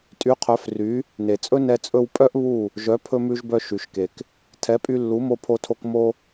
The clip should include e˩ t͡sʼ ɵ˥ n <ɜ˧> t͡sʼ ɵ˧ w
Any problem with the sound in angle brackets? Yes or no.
yes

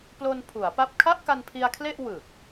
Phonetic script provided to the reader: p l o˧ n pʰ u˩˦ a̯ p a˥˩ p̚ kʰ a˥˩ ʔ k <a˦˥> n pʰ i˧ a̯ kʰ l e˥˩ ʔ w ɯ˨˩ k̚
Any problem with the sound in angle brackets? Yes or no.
yes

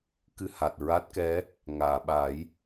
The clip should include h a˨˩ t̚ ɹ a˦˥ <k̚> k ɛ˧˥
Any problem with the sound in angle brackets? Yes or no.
yes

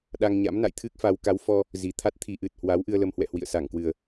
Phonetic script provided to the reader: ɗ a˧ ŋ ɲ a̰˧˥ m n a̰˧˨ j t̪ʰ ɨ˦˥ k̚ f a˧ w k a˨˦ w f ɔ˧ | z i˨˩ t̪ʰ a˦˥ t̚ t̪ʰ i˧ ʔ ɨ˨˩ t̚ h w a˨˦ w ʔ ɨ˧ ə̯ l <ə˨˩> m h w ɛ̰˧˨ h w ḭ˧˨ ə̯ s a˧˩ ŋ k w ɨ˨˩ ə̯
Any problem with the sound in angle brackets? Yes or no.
yes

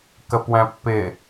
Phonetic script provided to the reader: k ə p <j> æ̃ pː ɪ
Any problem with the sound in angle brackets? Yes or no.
yes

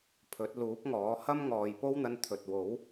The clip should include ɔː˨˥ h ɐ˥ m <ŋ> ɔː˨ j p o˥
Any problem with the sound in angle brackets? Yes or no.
no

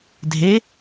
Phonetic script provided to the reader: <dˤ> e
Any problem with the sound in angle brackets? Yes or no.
yes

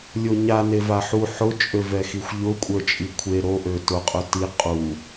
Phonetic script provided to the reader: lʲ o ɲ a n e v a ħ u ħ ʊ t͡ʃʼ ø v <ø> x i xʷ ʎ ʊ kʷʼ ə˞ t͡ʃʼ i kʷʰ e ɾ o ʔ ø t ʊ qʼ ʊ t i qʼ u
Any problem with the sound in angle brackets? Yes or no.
yes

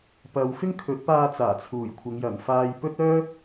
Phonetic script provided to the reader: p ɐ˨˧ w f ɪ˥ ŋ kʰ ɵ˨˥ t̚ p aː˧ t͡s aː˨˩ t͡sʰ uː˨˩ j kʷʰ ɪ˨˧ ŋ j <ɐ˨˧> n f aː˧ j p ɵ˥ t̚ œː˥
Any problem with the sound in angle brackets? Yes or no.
yes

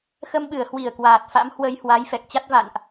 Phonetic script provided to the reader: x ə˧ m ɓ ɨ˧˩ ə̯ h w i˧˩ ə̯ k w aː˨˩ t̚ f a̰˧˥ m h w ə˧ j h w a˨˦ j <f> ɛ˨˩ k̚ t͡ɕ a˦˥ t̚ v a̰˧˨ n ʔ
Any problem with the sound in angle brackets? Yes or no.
no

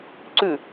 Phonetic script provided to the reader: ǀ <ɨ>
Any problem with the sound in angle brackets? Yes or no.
yes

